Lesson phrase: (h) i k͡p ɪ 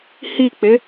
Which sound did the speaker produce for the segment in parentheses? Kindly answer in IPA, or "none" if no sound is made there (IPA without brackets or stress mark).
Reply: h